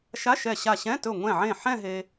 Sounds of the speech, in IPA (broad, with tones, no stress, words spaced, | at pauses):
ʃa˧˥˧ʃɛ˧˩ɕa˧˩ɕɛ̃˧˥˧ tɵ˧˩ŋʷɛ̃˧˩ʕẽ˧˩ ħɛ̃˥˧ɦe˧